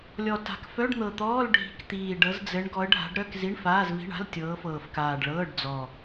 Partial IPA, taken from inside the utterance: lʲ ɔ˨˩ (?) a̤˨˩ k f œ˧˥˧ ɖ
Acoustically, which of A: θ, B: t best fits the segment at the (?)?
B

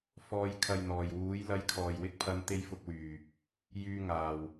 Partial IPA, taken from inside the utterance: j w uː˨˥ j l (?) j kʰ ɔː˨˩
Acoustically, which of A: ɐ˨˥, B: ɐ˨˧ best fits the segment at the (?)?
A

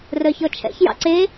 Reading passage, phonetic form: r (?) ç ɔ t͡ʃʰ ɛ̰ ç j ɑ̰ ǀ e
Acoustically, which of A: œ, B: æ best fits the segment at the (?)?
A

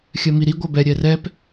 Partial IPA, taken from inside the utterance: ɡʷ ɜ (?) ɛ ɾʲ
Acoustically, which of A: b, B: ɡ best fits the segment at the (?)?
A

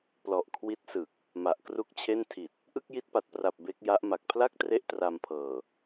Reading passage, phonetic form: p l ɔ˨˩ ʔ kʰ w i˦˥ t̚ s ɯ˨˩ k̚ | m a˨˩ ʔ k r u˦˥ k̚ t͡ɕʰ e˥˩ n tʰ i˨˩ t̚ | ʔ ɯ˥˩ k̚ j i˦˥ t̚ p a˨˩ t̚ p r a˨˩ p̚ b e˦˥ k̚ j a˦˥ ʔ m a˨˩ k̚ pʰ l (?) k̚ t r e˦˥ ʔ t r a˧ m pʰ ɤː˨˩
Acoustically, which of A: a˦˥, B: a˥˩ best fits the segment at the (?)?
B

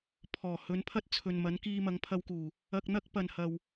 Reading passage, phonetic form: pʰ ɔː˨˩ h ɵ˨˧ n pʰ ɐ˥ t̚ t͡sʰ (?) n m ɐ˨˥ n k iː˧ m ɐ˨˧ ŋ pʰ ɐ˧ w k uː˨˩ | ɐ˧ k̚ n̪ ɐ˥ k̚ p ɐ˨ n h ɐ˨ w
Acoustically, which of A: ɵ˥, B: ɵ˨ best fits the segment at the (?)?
B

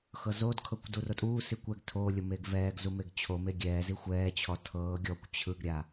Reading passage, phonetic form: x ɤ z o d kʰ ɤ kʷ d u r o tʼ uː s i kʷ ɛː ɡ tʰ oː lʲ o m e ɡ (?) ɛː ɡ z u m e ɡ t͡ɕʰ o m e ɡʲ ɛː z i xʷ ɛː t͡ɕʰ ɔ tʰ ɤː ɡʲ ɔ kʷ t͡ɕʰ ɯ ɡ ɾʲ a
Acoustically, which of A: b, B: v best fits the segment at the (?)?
B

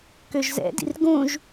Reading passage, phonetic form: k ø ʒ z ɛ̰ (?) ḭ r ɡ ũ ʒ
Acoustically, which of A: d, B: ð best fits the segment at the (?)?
A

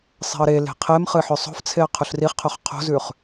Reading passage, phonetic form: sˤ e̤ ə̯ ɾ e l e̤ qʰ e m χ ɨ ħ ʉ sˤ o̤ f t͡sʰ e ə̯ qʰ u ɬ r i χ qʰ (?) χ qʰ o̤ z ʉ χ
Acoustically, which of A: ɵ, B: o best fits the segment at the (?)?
A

